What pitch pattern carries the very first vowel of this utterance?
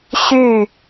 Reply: falling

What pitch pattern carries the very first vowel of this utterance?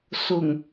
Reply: low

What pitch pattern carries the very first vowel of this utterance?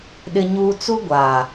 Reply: high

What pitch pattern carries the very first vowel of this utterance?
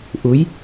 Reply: rising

